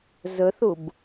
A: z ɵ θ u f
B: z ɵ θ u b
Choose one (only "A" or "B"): B